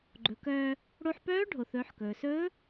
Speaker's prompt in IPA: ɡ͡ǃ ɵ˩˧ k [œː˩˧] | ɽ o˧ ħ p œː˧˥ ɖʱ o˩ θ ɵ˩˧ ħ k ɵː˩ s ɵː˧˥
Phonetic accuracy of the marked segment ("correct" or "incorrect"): incorrect